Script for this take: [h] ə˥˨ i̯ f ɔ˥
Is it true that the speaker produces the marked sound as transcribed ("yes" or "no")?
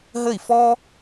no